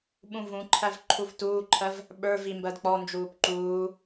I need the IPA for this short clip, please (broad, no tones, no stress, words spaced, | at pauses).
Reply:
ɓũvũǃʰæv ǃʰuvtuːǃʰɜv | ɓə˞vi mbɜdk͡pɔnd͡ʒuːp ǃuː